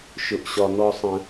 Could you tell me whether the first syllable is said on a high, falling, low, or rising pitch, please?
low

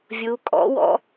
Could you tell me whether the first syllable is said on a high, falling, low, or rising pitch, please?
rising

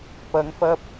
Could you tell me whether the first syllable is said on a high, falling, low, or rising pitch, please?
rising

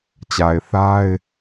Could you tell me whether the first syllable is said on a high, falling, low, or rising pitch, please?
low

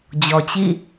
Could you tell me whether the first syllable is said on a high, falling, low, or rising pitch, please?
low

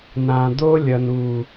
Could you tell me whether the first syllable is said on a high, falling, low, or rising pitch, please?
low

